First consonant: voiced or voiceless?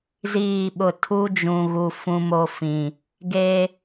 voiced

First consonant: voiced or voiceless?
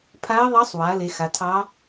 voiceless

